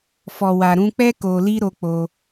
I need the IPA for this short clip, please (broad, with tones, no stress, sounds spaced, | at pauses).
f ɔ˨ w a˨ ɾ ũ˧ k͡p ɛ˦ k o˧ l i˦ ɾ o˧ k͡p o˧